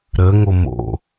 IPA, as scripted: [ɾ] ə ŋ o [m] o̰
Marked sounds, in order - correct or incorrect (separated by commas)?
correct, correct